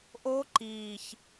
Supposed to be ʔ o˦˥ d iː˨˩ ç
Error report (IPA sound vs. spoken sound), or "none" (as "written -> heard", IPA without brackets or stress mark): d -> ǃ